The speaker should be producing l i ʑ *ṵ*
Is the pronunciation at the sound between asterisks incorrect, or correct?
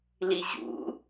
correct